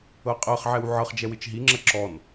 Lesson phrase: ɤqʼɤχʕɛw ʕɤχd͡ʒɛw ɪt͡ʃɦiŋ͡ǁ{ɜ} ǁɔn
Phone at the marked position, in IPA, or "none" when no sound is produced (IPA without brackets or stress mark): ɜ